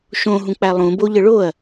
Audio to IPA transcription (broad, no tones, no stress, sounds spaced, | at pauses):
ʃ õ ɦ ũ k͡p æ lˠ ũ b o ʎ ə ɭ o ɐ̯